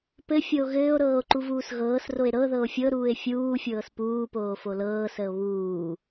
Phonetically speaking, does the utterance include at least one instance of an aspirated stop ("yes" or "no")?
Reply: no